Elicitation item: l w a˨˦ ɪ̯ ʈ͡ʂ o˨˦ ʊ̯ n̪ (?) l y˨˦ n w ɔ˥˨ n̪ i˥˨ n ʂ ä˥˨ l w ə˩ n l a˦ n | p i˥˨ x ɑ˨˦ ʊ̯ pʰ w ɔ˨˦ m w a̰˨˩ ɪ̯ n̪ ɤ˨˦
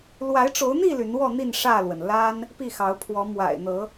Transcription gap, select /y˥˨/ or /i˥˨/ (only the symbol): i˥˨